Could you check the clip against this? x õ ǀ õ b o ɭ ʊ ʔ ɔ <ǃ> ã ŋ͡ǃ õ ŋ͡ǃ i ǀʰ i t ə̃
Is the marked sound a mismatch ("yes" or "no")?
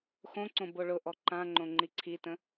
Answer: no